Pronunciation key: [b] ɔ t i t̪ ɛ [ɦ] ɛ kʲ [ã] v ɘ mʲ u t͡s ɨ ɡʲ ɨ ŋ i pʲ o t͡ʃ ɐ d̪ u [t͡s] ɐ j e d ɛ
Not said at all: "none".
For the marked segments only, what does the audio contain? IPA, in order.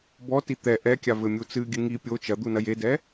b, ʔ, a, n

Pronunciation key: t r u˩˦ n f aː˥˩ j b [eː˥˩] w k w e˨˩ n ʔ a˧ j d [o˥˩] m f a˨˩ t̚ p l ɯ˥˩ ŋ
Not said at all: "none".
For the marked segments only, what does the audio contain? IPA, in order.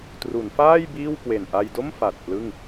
iː˥˩, o˥˩

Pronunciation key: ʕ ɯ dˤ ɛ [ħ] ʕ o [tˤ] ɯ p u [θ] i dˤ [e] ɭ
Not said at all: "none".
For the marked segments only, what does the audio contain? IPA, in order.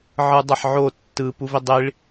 ħ, tː, v, i

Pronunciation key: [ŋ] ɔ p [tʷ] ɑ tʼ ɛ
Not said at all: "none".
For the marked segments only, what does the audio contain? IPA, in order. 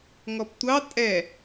ŋ, tʷ

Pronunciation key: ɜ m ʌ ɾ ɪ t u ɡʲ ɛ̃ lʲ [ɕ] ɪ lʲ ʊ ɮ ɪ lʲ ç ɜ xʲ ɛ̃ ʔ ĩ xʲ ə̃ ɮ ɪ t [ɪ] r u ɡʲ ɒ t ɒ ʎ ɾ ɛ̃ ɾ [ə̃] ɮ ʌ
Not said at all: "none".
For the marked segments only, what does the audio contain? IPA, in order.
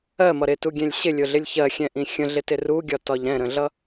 ɕ, ɪ, ə̃

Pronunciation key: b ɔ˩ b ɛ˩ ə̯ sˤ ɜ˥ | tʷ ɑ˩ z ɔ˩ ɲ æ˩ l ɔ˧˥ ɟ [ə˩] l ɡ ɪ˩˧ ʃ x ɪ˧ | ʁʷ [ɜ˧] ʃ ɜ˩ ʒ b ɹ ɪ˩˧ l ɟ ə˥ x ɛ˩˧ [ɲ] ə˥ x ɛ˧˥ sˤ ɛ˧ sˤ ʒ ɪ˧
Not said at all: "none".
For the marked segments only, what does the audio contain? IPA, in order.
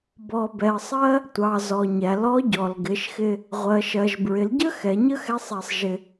ɔ˩, ɜ˩, ɲ

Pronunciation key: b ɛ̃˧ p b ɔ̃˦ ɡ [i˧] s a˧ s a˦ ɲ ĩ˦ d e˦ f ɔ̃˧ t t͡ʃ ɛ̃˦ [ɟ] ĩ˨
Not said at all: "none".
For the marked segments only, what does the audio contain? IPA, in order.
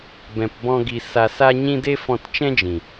i˧, d͡ʒ

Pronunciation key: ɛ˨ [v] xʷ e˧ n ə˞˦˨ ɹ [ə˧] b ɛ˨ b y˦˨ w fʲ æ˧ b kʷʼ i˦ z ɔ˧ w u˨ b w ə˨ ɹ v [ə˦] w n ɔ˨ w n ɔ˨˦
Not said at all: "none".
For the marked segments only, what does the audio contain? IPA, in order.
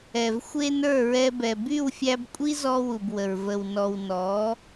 v, ɛ˧, ə˨

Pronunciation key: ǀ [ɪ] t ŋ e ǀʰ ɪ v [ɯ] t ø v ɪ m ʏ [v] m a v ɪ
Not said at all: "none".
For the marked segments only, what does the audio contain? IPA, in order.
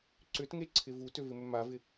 ʏ, u, none

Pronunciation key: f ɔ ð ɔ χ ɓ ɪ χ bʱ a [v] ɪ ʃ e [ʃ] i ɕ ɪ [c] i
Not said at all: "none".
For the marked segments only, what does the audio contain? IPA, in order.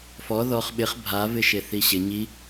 v, θ, ɲ

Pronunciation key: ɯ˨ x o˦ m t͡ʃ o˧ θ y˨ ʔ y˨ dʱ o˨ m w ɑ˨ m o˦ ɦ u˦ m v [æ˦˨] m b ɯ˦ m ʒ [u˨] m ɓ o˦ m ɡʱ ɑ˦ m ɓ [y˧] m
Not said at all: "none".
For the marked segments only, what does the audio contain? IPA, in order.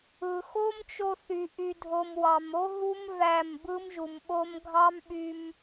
æ˦˨, u˨, y˧

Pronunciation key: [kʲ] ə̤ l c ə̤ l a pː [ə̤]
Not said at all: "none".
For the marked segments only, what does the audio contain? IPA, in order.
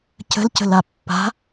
c, a̤

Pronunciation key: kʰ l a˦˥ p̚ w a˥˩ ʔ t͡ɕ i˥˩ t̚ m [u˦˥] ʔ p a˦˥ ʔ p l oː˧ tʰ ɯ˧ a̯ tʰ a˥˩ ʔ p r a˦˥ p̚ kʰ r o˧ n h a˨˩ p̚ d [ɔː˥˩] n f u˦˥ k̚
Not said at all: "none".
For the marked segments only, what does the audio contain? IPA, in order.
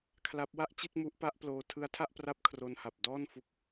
u˦˥, ɔː˥˩

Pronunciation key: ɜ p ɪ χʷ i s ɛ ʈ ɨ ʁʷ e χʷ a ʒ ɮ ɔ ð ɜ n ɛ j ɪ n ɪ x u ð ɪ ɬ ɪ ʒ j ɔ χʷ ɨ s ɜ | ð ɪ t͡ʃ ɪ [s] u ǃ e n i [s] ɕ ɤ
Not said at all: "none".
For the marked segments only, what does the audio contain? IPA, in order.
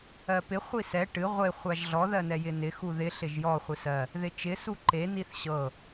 s, θ

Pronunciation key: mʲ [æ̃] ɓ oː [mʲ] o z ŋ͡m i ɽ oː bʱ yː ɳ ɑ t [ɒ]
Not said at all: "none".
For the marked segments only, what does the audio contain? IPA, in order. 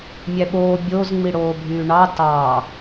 æ, bʲ, ɑ

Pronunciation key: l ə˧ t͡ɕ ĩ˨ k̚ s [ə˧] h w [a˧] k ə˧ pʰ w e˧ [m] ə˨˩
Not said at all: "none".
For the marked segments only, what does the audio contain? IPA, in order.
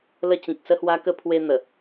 ə˧, a˧, n̪

